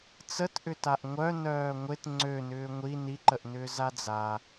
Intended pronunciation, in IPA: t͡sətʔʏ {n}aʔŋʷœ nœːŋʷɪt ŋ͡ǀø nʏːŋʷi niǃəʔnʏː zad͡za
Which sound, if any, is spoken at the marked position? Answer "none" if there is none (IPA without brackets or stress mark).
t